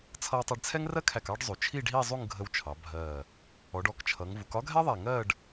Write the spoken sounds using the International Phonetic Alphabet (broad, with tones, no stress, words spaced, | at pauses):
t͡sʰʌ˧wtˤæ˧ɖt͡sʰɛ˥ŋrɜ˥ kʰæ˧˩kɑ˥˧ɖ zˤu˩˧t͡ʃʰi˥˧ɖɦi˥˧ zˤu˥˧ŋɡʱə˧wt͡ʃʰɑ˩˧ bʱɜ˧˩ | ɔ˩˧ɖɔ˧˩kt͡ʃʰʌ˩˧ŋ vu˩˧kɒ˥ɡʱɛ˥ðˤæ˧˩ ŋɜ˥˧ɖ